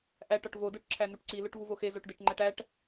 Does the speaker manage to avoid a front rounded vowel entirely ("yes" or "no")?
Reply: yes